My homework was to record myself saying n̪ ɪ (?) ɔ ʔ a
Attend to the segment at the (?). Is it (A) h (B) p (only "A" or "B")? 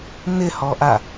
A